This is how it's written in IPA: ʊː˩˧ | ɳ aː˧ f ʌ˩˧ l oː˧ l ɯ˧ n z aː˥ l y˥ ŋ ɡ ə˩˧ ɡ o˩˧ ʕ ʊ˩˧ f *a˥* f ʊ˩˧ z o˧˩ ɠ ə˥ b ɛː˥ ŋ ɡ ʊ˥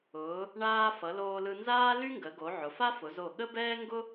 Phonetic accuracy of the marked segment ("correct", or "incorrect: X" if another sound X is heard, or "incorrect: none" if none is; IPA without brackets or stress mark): correct